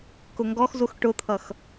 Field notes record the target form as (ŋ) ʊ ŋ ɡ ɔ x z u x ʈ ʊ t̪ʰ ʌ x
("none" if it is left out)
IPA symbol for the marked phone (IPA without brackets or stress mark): k